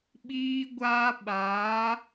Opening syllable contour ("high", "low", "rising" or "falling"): high